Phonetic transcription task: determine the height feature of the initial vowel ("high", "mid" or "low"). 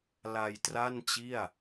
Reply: low